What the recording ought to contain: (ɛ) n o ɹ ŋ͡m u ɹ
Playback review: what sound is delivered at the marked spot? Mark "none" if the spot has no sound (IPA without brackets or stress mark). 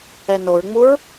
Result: ɛ